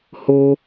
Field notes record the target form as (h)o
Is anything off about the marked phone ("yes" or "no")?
no